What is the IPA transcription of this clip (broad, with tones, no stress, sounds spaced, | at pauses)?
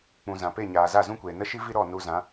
k͡p ũ˨ z ã˨ p e˦˨ ɲ aː˨ z a˦˨ z ũ˦ kʷ eː˨ n ə˦ ʃ i˦ v i˦ ɾ ɔ˦˨ n u˧ z ã˨˦